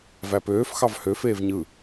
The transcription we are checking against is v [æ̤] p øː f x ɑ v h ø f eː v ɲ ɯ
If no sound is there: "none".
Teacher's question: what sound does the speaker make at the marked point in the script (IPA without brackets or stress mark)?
æ